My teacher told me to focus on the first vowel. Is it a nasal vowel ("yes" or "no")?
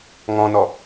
yes